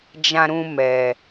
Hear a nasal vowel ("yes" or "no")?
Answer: yes